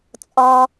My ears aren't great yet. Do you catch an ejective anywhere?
yes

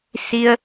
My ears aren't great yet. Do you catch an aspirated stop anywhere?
no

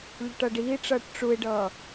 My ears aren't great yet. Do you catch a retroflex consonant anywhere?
yes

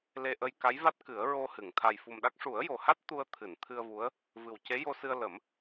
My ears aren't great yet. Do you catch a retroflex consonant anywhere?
yes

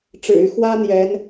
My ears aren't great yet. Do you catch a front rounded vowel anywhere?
yes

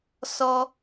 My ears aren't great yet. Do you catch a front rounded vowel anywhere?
no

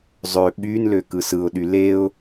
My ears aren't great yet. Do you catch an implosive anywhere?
yes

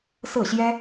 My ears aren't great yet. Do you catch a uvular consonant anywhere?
no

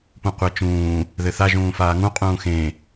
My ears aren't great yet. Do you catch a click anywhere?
no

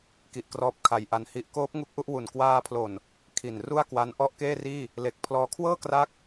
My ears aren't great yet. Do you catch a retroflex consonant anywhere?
no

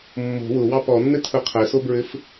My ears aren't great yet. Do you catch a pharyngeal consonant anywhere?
no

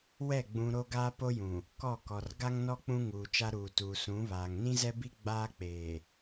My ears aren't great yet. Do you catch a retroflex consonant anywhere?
no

